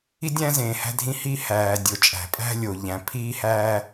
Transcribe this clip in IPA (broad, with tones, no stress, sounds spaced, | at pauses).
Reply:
i˥ dʲ æ̃˥ z ẽː˩ h æ̤˥ dʱ ĩ˥ h i˥ h æː˩ dʲ o˩ t͡ʃʼ æ̤˩ pʼ æ̤˥ lʲ o˩ ʎ æ̃˩ pʰ iː˥ h æː˥